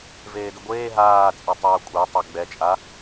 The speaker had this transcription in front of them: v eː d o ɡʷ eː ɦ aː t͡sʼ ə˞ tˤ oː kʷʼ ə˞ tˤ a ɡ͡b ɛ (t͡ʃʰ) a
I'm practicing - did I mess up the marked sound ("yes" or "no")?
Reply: yes